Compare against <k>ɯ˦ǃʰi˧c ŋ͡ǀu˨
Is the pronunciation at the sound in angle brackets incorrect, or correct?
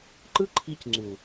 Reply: incorrect